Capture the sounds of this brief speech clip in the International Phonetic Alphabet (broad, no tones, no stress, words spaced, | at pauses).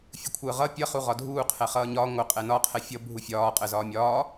fʲukʷʰəːʁʌ pʲʌ χuʁɒdʱuː qʰɛχʌːɲɒ ŋʷə qʼɛnɒ qʰɛfʲʌ bʱufʲɒː qʼəːzɒːmʲɒː